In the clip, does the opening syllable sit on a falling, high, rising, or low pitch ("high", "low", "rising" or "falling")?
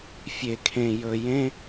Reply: low